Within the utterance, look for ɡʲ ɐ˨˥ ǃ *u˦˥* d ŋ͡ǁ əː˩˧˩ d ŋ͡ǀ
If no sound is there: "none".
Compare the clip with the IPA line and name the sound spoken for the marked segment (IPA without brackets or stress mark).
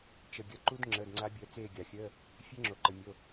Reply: u˦˥